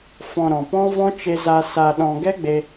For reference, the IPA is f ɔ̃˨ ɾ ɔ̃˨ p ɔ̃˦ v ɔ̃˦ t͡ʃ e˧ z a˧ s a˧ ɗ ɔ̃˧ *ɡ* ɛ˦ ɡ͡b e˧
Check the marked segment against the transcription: correct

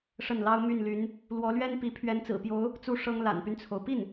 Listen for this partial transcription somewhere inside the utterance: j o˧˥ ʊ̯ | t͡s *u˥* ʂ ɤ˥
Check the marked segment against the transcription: correct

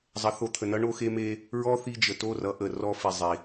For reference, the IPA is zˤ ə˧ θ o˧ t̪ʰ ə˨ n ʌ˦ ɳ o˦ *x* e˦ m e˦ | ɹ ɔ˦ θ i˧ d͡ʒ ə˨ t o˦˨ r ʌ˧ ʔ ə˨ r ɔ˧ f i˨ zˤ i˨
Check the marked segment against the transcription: correct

